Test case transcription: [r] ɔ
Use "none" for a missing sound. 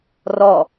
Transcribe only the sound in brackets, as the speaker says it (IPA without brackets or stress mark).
r